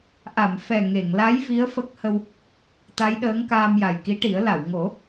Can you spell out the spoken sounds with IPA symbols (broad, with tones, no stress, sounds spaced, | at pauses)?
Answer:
ʔ a˨˩˨ m f ɛ˨˩ ŋ e˨˩˨ ŋ l a˧˥ j v i˧˥ ə̯ f ə˦˥ k̚ h ə˧ w | t̪ a˧˥ j ɗ əː˧˥ ŋ k aː˧ m j a˨˩ j k i˧˥ ʈ i˨˩˦ ə̯ l a˨˩˨ w ŋ o˨˩˦